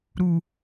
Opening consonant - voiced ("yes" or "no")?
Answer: yes